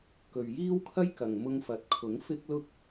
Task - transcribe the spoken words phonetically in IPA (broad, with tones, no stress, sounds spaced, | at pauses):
k ɵ˨ ɥ j iː˥ w kʰ ɐ˥ j k ɐ˨ ŋ m ʊ˧ ŋ f ɐ˨ t̚ kʰ ʊ˨˥ ŋ f ɪ˥ k̚ l ʊ˥ k̚